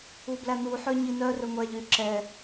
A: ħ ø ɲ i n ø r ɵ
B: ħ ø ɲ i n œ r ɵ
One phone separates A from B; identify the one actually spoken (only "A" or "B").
B